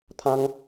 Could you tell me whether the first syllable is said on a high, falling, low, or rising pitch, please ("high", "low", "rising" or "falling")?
high